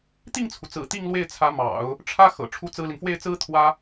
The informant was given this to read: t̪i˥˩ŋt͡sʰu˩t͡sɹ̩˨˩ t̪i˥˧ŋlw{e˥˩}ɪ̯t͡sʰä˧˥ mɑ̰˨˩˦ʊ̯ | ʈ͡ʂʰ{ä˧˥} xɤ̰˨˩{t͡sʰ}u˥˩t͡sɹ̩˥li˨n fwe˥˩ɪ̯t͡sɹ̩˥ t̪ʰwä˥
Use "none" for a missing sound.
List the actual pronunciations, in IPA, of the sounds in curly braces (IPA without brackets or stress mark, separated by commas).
e˥˩, ä˥, ʈ͡ʂʰ